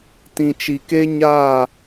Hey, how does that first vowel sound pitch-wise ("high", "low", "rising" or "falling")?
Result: low